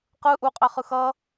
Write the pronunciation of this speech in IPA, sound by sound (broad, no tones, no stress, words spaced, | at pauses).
qɯ ʔuqʼɛχɯ xʌ